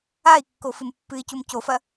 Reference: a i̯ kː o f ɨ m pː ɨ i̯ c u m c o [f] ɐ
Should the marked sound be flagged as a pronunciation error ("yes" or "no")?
no